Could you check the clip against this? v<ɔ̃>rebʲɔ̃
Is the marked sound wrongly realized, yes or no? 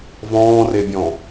yes